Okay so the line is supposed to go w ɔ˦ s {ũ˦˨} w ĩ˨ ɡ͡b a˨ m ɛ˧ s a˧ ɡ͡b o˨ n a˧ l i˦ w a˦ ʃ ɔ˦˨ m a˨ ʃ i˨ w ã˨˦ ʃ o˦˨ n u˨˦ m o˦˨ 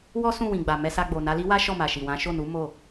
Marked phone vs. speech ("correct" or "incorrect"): correct